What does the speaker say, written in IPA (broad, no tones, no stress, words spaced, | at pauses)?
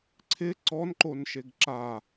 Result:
ǀʰɪ ǀɔnǃonʃeɡ ǁa